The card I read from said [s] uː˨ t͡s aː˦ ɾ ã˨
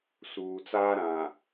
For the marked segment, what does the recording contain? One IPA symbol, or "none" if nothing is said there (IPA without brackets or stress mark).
s